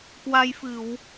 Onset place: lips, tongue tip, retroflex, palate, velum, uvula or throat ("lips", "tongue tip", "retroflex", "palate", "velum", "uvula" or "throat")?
velum